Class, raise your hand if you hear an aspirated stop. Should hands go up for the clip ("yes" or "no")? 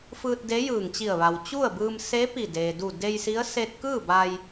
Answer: no